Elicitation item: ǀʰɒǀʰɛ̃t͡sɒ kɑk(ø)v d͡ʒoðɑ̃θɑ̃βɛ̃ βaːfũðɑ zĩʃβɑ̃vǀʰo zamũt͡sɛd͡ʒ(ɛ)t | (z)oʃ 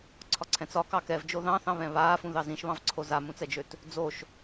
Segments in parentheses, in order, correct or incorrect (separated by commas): incorrect, incorrect, incorrect